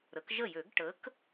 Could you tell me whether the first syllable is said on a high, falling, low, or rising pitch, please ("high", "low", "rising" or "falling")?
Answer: rising